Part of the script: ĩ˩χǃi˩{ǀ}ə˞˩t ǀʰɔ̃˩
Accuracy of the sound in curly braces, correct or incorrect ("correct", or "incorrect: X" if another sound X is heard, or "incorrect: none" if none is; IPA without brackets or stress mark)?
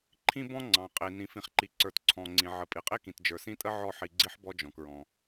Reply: correct